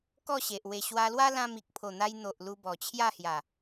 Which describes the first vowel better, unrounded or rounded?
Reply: rounded